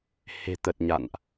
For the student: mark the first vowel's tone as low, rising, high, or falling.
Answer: low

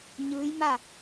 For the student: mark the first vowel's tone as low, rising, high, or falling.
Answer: rising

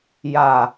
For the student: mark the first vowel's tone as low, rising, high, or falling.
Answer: low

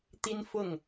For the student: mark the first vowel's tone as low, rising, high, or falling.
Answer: high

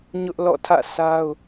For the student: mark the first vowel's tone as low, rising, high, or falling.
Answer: high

